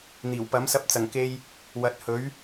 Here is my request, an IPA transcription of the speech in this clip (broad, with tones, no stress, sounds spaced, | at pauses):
n̪ iː˨˩ w p ɐ˨˥ m s ɐ˧ p̚ t͡s ɐ˨˩ ŋ k e˧ j | w ɐ˨˥ t̚ h ɵ˨˥ ɥ